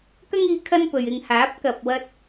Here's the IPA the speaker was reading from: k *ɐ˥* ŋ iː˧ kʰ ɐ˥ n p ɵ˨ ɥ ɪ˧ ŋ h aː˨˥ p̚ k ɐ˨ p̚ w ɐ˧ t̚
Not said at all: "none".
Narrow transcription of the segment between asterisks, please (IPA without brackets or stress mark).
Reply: ɐ˥